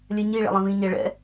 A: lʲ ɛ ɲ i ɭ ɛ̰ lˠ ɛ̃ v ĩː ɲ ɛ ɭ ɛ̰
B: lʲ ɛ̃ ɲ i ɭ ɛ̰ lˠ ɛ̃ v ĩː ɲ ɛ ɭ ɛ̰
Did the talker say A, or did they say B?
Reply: A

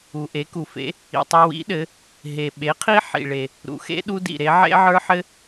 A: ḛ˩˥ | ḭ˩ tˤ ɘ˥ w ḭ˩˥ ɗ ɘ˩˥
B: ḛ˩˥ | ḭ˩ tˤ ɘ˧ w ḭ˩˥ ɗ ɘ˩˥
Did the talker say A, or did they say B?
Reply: B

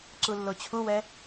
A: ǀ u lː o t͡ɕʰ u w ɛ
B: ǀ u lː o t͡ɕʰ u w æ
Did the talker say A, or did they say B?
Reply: A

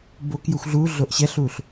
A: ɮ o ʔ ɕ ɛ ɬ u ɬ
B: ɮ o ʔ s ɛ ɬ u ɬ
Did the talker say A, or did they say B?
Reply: A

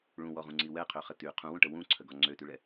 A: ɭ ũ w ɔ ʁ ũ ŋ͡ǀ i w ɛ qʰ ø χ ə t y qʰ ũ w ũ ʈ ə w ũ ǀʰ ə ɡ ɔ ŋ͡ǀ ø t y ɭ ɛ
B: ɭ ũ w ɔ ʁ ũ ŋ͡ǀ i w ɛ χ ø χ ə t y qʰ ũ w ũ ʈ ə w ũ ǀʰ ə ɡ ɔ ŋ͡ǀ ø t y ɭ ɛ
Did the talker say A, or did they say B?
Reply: A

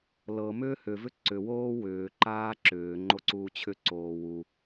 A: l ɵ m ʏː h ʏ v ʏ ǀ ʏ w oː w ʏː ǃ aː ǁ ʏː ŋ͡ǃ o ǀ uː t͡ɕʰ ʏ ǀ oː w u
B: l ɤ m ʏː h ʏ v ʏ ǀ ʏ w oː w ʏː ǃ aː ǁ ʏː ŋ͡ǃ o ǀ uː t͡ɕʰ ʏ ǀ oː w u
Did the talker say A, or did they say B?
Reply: B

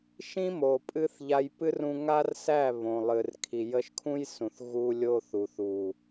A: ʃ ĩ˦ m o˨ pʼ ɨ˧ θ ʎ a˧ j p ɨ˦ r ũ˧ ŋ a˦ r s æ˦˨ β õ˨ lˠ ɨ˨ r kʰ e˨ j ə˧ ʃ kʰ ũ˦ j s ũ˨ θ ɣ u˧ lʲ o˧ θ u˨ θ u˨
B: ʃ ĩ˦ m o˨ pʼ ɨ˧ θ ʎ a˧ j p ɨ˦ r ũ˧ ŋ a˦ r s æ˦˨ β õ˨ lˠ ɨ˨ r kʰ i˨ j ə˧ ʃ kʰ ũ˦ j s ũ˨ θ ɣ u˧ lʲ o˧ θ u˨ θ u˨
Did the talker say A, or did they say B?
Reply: B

